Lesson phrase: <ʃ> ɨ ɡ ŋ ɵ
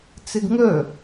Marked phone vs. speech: incorrect: t͡s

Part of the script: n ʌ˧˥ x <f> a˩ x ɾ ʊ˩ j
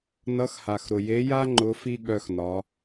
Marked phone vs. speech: incorrect: h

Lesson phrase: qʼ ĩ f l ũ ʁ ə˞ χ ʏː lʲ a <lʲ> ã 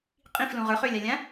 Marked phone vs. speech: correct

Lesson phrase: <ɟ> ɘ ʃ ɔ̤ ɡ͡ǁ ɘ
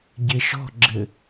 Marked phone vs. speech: correct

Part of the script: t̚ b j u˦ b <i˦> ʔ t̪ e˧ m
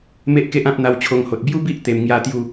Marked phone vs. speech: correct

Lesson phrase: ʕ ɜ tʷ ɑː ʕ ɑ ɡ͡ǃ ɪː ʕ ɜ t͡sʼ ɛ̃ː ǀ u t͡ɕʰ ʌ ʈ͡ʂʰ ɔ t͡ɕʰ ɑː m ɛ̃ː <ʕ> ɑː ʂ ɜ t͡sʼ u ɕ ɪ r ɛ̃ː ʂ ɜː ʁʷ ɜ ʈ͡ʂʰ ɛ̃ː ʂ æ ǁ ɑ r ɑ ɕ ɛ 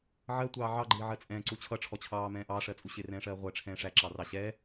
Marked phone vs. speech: incorrect: ʔ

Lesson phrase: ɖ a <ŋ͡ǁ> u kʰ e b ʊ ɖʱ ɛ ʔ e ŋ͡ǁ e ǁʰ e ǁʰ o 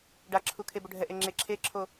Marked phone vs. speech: incorrect: ǁʰ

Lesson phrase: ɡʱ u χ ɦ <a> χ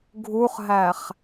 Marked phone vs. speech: incorrect: æ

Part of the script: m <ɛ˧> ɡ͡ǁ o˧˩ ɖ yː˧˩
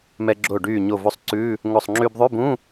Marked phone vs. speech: correct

